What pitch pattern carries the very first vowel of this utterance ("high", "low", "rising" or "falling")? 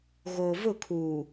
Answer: low